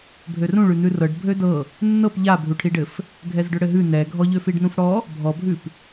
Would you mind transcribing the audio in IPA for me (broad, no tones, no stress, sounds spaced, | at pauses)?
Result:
bʱ ø r ũ ɭ ʉ n̪ ʉ r ɤ ɖ bʱ ø d ɤ | nː ɤ p ʎ a bʱ u ʈʰ i ɖ ɘ f | ɡʱ ɛ z ɖ ø ɽ ɘ ɦ ʉ n ɛ ɡʱ ɔ ʎ ø f i ɖ n ũ f ɽ ɔ | bʱ ɔ bʱ ʉ p